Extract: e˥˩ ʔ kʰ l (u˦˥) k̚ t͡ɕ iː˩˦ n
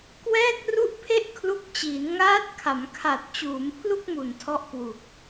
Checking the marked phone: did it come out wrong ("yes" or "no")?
no